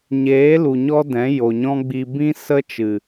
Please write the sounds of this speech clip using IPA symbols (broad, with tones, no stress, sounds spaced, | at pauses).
ɲ eː˨˦ l u˨ ɲ ɔ˦ d ɛ̃˨˦ j o˨ ɲ ɔ̃˦ ɡ͡b i˧ b ĩ˦ s ə˦ t͡ʃ ɨ˨